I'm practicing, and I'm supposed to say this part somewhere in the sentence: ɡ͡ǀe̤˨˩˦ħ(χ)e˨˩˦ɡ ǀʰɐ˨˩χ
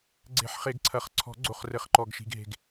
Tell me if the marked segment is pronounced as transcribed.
yes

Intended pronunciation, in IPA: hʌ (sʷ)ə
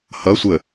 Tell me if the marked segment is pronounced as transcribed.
yes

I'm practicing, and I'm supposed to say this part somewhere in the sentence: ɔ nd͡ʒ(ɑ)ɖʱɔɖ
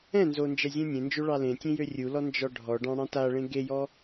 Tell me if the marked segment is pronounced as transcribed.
no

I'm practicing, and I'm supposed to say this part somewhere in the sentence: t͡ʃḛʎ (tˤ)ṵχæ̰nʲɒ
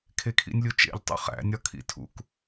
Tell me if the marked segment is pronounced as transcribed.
yes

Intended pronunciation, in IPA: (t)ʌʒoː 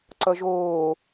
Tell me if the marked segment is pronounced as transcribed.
no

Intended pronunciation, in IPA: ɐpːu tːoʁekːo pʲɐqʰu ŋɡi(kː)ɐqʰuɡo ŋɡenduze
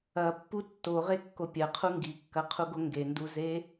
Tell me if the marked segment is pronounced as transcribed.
yes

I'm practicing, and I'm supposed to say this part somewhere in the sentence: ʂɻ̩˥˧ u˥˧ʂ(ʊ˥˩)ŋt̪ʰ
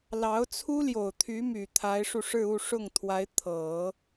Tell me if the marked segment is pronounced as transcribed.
yes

